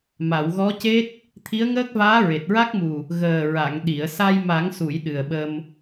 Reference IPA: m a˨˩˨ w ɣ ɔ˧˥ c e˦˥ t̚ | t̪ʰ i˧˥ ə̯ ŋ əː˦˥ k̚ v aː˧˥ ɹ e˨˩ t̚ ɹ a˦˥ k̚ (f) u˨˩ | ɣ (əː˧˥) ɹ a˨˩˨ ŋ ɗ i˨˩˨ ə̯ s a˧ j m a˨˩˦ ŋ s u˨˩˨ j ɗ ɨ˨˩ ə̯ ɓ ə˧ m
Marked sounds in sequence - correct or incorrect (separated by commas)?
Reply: incorrect, incorrect